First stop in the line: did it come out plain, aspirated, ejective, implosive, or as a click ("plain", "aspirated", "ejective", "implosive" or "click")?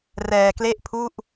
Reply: plain